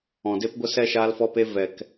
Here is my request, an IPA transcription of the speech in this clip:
ɔ̃˨ d e˦ p ɡʷ ə˦ s ɛ˦ ʃ aː˧ l f ɔ˧ p e˧ v ɛ˨ k

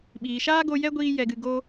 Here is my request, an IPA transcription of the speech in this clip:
ɓ iː˨ ʃ aː˦ ɡ o˧ j ɛ˦ ɡʷ iː˧ j ɛ˨ ɡ ɨ˨ ɡ o˦

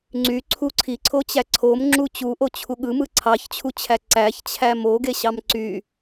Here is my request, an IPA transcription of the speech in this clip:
ŋ͡ǀ y ǀʰ u ǀʰ i ǀʰ o t͡ɕ æ ǀʰ o m ŋ͡ǁ u t͡ɕ u ʔ o t͡ɕʰ u ɠ ɯ m ɯ ǀʰ ɑ ç t͡ɕʰ u t͡ɕʰ æ ǀ æ ç t͡ɕʰ æ m o ɡ e ɕ ɑ m ǀ y

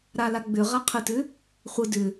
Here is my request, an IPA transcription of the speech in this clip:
ɾ a l a ɡ͡b ʏ ʁ a qʰ ə t ʏ | χʷ ə d ʏ

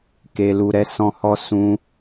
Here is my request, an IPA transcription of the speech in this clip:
k e˨ l u˨ ɾ ɛ˧ s ɔ̃˧ h ɔ˦ s ũ˦

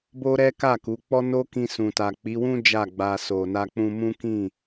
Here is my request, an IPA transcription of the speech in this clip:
b o˦ ɾ ɛ˦ k a˦˨ k u˨˦ k͡p ɔ˦ n o˦ k ĩ˧ s ũ˨ t a˨ k͡p i˨˦ w ũ˦ d͡ʒ a˦˨ ɡ͡b a˧ s o˨ n a˧ k͡p ũ˧ m ũ˦ k ĩ˦˨

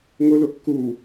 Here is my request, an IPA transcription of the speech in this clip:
ŋ ʊ l ʊ kː u

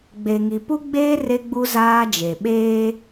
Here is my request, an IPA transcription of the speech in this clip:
ɡ͡b e˨ ŋ i˨ p u˦ ɡ͡b eː˦ r e˦ ɡ͡b u˦ z aː˦ d͡ʒ e˨ ɓ eː˦

